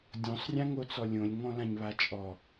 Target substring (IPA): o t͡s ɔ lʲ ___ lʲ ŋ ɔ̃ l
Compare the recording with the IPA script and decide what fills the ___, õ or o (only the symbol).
õ